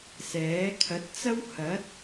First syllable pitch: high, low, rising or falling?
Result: rising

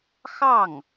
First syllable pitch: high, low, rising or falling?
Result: falling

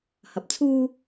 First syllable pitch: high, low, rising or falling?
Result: low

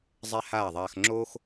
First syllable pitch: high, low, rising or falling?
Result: high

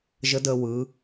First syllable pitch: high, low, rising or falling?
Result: rising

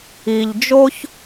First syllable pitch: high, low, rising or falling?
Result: low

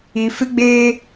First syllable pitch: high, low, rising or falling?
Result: high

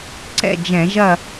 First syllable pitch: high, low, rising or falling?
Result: falling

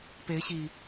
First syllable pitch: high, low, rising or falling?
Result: rising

